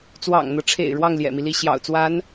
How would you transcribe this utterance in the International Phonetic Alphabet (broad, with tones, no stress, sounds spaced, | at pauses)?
t͡s w ɑ̰˨˩ ŋ n̪ ɤ˦ ʈ͡ʂʰ ḛ˨˩ ɪ̯ ɻ w ɑ˥˩ ŋ l j ɛ̰˨˩ m i˦ l i˥˩ ɕ j ɑ̰˨˩ ʊ̯ t͡s w a˧˥ n